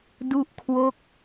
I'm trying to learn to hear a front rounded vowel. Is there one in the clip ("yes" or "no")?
no